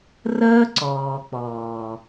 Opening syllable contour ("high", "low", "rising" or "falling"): high